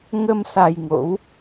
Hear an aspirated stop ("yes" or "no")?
no